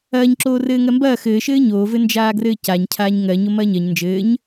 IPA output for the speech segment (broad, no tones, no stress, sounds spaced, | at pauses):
ɐː ɲ ǁ oː r ɘː ŋ ɜ m b ɐː x ɘː ʃ ɘː ɲ oː v ɘ n d͡ʒ aː ɡ r ɘː c a ɲ cʰ aː ɲ ŋ ɜ ɲ o m ɐː ɲ ɜ ɲ n d͡ʒ ɘː ɲ